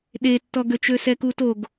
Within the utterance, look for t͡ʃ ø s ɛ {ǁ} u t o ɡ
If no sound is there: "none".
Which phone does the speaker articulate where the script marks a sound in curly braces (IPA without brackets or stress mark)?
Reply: k